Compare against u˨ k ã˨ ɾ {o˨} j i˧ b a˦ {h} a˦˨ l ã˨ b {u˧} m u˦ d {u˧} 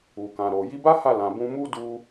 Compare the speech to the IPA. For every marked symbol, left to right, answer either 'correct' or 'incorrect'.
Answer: correct, correct, incorrect: ũ˧, correct

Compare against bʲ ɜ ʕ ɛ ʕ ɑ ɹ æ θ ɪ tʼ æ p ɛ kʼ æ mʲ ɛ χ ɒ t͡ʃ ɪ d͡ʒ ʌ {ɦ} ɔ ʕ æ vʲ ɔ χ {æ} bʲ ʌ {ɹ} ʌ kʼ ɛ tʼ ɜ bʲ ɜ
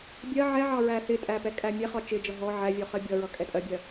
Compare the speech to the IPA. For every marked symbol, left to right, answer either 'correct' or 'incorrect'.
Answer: correct, incorrect: ɜ, correct

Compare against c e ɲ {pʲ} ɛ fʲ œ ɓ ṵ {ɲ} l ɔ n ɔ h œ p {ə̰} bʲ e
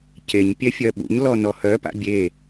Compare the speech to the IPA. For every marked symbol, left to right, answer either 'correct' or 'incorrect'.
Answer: correct, correct, incorrect: a̰

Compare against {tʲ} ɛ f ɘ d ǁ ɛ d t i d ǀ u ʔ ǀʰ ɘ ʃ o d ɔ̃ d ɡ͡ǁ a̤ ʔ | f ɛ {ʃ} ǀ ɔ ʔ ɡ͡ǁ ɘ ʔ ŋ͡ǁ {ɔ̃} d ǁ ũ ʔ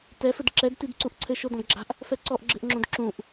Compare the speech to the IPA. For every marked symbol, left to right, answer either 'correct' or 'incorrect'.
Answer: incorrect: t, incorrect: none, incorrect: õ

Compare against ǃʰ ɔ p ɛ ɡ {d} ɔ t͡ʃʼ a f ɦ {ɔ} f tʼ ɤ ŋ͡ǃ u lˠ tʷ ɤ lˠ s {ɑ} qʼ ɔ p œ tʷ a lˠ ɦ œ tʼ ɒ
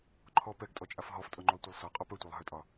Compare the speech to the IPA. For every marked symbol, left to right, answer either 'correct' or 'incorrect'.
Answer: incorrect: tʼ, correct, incorrect: ɒ

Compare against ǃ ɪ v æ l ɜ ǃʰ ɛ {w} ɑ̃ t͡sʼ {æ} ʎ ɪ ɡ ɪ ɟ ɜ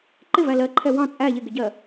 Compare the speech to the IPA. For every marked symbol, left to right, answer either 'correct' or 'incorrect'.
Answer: correct, correct

